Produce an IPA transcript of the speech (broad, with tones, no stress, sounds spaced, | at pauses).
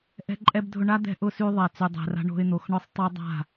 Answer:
ʔ ɛ̤˧ ǃʼ ɛ˧ b dʱ ʊ˧ ɳ a˦ d̪ ɛ̤˦ ʔ ʊ˧ s y˧ ðˤ ɛ˨ t͡s y˨ dˤ ɛ̤˨ r a̤˧ ɳ o̤˧ ɪ̯ n̪ o˨ x ɳ ʊ˦ sˤ tˤ ʊ˦ dˤ a̤˦˨